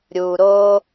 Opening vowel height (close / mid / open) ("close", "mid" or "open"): close